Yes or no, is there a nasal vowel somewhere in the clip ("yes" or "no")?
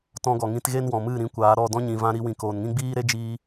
yes